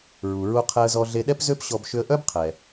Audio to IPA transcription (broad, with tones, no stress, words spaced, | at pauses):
ɹu˩ɹu˧ qʰɛ˧ə̯zɔ˧ɮe˧ ɗɛ˥pzø˥pɕɔ˧b ʃʏ˧ə̯ʔœ˥bqʰɛ˩